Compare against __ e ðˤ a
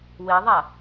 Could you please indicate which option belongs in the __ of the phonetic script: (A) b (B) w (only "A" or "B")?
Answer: B